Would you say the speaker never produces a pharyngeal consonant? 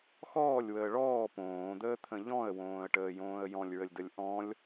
yes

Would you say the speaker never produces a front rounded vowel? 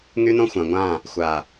no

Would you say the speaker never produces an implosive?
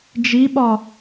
no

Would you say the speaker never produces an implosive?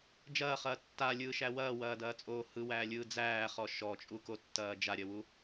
yes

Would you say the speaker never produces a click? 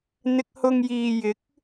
yes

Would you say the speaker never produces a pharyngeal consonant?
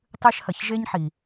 no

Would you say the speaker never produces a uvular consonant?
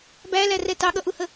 yes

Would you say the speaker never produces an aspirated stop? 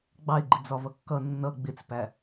yes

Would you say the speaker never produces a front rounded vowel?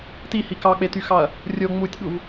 no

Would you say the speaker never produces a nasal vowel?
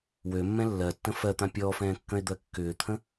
no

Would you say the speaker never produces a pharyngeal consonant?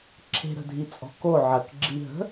no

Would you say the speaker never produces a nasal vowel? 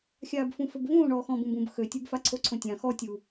no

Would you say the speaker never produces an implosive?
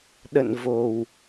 no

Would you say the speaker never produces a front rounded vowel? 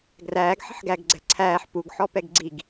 yes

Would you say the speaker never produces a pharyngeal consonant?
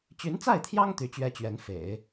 yes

